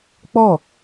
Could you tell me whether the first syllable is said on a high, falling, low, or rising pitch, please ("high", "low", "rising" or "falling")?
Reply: falling